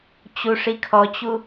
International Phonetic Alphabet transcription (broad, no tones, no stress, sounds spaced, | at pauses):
t͡ɕ u ʂ i kʰ ɔ t͡ɕ u